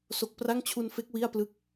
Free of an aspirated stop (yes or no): no